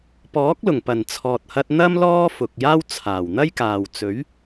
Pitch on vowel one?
rising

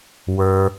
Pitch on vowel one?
low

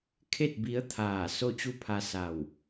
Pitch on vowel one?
falling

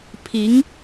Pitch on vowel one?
rising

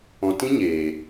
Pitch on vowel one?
low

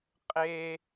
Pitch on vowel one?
high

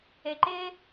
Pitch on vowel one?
falling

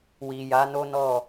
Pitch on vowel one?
low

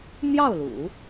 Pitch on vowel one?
falling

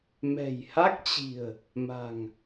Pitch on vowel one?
low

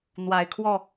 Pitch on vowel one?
low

